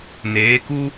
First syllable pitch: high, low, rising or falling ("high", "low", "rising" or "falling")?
rising